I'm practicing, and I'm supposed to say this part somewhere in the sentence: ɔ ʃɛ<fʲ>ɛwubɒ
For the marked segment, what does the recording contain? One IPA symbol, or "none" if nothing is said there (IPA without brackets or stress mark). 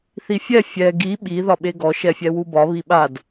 fʲ